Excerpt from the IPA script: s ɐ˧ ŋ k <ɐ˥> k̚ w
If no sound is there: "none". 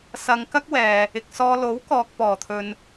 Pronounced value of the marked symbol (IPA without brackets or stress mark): ɐ˥